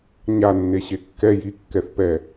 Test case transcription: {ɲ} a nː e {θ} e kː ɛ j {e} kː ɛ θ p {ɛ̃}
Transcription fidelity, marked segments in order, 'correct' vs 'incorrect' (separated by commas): correct, incorrect, incorrect, incorrect